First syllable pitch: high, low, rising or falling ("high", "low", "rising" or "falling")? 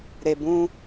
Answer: low